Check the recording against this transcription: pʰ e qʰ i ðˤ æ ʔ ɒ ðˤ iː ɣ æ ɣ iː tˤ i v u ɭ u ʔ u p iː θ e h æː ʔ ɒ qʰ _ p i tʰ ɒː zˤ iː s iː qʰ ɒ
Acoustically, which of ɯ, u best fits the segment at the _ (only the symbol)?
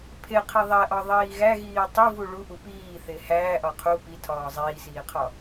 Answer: u